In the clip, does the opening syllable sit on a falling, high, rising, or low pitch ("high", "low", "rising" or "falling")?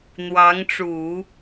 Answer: rising